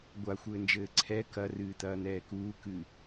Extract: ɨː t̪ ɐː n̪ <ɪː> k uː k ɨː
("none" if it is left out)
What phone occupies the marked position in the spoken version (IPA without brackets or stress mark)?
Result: ɛː